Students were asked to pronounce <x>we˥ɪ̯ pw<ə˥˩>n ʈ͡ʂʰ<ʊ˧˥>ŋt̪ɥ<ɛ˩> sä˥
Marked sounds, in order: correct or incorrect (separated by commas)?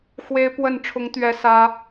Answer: correct, correct, correct, incorrect